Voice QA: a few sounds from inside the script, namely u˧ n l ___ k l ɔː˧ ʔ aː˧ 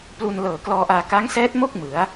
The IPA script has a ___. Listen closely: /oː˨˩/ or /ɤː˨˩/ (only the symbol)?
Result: ɤː˨˩